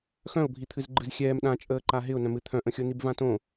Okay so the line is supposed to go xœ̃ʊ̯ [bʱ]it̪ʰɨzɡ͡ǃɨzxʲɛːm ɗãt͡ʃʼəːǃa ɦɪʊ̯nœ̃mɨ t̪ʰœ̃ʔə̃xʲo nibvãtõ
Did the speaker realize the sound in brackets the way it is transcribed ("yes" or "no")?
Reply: yes